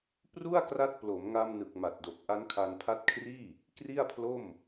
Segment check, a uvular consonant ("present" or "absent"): absent